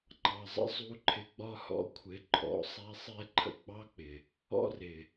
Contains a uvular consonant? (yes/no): no